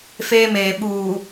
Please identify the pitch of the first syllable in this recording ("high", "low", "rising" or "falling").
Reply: high